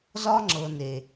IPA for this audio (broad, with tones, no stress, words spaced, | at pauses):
zɒ˦ŋ͡ǁɤ˨ne˨